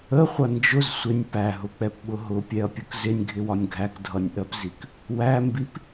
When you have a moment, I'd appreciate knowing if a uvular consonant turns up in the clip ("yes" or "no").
yes